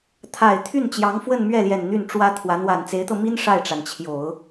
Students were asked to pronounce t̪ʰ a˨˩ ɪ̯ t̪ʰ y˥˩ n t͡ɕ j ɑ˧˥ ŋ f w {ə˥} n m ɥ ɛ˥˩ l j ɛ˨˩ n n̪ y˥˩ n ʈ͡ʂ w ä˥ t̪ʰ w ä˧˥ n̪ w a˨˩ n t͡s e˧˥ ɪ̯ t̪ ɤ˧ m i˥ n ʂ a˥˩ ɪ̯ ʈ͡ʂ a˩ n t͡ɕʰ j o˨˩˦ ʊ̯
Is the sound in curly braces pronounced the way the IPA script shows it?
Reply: no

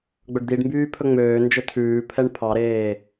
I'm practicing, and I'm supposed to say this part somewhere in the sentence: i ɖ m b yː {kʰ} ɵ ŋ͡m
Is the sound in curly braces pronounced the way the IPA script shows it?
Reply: no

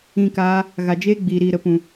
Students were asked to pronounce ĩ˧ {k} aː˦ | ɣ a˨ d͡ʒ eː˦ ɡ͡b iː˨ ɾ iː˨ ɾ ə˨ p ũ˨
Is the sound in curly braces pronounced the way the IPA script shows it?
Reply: yes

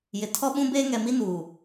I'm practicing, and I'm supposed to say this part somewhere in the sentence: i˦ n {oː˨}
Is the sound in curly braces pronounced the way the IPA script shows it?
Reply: no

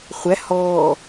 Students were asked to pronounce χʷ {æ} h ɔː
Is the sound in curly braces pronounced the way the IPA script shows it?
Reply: yes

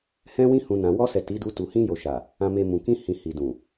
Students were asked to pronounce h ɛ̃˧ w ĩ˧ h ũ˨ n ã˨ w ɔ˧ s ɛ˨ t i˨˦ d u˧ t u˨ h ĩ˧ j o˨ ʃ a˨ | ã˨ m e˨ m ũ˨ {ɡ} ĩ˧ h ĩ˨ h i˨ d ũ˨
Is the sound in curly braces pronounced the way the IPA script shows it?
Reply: no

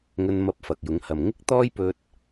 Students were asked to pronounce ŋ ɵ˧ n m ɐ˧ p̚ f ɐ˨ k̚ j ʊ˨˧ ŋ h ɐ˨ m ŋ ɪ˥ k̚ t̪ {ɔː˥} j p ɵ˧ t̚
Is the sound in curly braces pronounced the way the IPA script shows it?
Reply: yes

